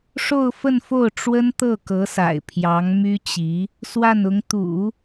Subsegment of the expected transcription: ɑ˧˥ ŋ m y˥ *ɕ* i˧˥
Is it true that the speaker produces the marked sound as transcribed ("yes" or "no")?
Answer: no